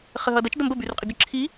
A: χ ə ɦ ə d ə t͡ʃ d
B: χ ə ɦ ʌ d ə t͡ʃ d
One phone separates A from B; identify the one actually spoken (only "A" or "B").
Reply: B